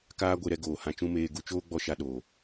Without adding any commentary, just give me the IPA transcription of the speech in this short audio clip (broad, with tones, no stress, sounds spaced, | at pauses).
k aː˦ ɡʷ e˧ ɾ ɛ˧ ɡ oː˨ h ã˧ t͡ʃ ũ˦ m eː˧ ɡ u˧ t͡ʃ oː˦ ɡ͡b ɔ˦ ʃ a˧ ɗ oː˨